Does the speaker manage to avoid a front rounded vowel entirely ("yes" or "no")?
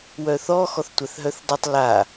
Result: no